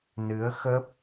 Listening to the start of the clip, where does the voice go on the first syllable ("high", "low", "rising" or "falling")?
rising